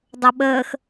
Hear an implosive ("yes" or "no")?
yes